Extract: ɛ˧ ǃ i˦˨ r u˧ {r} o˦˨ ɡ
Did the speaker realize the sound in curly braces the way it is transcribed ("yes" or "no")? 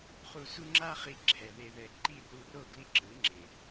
yes